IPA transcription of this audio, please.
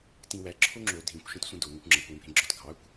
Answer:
t ĩ w æ ǁʰ o ŋ͡ǁ o dʱ ĩ kʷ ʃ ẽ t sʷ ə̃ d o ŋ ɐ kʷ ŋ͡ǁ ɐ kʷ w ẽ bʱ ẽ ɡ͡ǁ ɔ t ɡʱ ɑ kʷ

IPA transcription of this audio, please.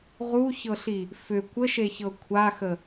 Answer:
ʁ u ç ɤ ɬ i | f ʏ kʷ ə ʃ e ç ɤ kʷʰ a x ə

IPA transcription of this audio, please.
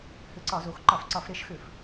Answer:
h ʏ˧˩˧ ǀ ɒ˧˩˧ z o˩˥ x ǃ ɒ˧˩˧ f ǀ ɒ˧˩˧ f ɾ e˩˥ ʃ x ʏ˧˩˧ f

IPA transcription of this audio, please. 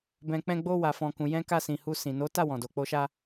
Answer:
b ɛ̃˨ k͡p ɛ̃˧ ɡ͡b o˧ w a˨ f ɔ̃˨ k ũ˨ j ɛ̃˧ k a˧ s ĩ˨ h u˧ s ĩ˨ n o˨˦ t a˦˨ w ɔ̃˨ d o˨ k͡p o˧ ʃ a˧

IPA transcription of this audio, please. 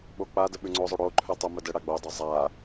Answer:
ɓ o k͡p a d ə ɓ ʉ ŋ͡ǀ o zˤ o ɽ o ǃʰ ʉ tˤ o m ə d ə ɽ a ɡ͡b o dˤ o zˤ a

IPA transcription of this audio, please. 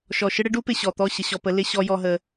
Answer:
ʃ ɔ˨ ʃ ɪ˦ ɽ ɪ˦ ɖ u˦ p ɪ˨ ɕ ɔ˨ t̪ ɔ˦˨ ɕ ə˨ ɕ ɔ˨ p ə˨˦ l ɪ˦ ɕ ɔ˦ j ɔ˦ ɦ ə˦

